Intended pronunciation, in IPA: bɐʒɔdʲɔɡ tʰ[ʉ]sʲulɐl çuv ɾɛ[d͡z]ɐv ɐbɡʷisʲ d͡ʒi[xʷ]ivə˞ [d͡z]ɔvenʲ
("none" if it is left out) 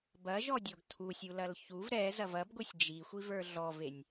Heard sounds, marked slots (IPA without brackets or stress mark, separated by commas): u, z, xʷ, ɮ